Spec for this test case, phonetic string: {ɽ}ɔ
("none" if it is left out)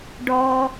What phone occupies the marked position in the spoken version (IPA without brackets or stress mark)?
ɖ